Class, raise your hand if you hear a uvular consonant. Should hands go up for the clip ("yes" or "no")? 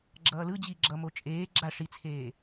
no